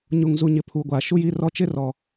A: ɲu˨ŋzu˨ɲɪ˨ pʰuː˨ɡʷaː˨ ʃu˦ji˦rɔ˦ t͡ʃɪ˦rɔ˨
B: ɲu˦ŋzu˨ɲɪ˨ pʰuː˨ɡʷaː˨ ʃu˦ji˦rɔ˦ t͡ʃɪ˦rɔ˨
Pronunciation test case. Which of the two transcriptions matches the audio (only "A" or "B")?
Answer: A